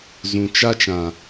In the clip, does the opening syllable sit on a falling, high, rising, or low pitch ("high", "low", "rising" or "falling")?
low